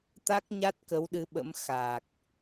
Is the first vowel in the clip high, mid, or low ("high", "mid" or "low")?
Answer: low